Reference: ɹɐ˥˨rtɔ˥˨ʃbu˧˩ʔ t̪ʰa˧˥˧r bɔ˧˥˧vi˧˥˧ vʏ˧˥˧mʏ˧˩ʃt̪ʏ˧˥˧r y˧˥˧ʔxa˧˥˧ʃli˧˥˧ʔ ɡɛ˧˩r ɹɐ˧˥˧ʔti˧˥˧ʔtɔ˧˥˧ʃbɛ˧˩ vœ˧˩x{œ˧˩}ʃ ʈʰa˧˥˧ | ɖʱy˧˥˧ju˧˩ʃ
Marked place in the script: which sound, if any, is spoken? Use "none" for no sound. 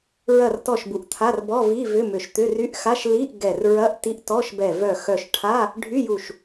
œ˧˩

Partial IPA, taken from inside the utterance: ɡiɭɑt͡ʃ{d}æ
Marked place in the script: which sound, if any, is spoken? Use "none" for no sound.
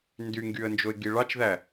ð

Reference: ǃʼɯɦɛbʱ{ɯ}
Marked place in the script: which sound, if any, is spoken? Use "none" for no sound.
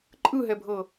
ɤ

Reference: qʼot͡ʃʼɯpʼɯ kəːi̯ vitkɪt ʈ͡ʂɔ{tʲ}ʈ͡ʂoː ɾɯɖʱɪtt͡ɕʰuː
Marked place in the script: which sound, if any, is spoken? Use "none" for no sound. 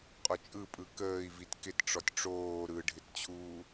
tʲ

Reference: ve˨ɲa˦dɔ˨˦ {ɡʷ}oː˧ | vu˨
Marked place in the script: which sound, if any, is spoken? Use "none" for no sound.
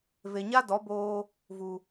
b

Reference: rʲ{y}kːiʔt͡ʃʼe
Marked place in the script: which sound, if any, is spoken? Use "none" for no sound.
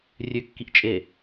ø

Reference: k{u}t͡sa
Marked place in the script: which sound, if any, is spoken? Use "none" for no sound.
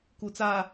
u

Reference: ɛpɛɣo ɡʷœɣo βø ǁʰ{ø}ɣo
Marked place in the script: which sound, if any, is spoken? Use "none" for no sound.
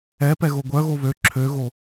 ø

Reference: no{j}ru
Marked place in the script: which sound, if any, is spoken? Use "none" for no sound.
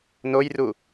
j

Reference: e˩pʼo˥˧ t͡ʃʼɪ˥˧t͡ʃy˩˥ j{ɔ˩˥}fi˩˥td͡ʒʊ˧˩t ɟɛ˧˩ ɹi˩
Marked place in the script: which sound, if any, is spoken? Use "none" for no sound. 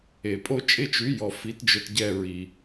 ɔ˩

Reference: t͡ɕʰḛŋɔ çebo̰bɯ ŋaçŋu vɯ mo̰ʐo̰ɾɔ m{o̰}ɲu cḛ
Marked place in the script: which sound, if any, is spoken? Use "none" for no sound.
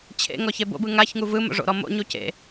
o̰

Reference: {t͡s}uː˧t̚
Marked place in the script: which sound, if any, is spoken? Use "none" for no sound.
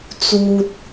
t͡s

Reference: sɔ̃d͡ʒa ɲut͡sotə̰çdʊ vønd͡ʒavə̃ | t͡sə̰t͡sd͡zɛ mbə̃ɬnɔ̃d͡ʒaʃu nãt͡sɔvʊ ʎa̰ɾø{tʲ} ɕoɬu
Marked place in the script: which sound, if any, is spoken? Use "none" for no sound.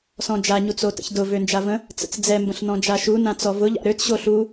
t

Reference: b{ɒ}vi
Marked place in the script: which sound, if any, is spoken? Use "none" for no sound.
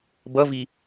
ʌ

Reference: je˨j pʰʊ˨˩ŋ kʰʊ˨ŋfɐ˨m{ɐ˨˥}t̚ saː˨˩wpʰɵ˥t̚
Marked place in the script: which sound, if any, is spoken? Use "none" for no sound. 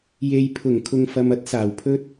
ɐ˥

